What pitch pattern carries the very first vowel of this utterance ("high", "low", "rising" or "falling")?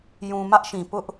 low